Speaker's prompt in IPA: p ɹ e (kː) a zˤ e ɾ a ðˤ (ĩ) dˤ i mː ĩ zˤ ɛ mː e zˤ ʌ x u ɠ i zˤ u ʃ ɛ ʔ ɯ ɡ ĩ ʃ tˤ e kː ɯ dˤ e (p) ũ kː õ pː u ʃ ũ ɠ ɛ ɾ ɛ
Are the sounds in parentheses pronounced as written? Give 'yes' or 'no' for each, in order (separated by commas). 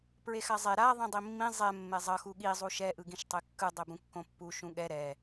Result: no, yes, no